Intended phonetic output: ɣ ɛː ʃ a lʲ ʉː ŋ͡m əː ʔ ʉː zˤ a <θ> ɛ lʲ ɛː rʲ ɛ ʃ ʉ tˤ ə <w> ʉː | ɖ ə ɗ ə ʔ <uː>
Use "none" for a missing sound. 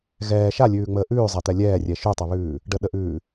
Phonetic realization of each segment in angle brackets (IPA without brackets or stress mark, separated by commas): t̪, β, ʉː